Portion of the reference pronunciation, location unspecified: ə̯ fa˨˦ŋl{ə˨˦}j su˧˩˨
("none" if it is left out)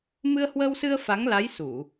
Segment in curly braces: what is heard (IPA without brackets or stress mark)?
a˨˦